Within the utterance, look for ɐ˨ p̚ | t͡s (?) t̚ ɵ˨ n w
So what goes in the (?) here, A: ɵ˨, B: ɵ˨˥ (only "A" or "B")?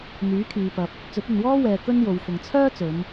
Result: B